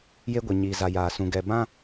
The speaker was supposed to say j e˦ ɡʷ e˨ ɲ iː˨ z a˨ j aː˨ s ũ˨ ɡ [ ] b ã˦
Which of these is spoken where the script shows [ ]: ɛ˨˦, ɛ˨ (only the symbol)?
ɛ˨